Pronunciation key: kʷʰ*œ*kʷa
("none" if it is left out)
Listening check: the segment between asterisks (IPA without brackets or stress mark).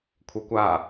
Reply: œ